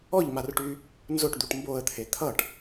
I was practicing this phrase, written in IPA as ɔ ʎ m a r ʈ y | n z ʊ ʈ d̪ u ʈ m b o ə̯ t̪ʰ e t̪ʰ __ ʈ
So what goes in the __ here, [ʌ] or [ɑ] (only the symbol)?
ʌ